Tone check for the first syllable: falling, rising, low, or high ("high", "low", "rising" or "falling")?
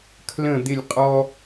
falling